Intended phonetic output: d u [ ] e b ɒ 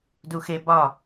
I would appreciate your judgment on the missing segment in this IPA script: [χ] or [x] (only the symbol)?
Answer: x